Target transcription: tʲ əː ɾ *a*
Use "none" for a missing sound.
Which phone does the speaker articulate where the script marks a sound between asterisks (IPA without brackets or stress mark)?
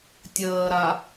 a